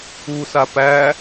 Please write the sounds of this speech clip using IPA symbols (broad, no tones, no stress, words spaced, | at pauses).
usa pæ